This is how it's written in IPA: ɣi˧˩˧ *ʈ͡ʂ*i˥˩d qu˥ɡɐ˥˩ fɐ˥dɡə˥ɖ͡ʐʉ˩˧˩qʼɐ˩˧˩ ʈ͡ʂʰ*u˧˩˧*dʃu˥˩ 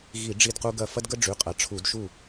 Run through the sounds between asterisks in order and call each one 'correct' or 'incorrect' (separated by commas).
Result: incorrect, correct